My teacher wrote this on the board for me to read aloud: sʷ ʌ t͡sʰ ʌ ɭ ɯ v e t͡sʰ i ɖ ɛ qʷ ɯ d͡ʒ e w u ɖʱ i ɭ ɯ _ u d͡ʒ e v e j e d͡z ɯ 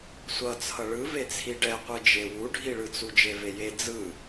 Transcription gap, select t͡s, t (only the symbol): t͡s